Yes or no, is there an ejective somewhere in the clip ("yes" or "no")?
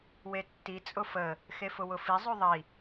yes